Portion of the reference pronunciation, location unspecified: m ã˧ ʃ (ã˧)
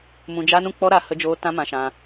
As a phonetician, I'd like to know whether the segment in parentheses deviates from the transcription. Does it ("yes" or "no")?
no